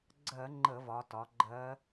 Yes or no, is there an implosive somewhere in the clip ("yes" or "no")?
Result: no